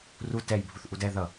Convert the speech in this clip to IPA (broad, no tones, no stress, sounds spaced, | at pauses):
r u t ɛ j bʱ u θ ʔ u d ɛ ð ʌ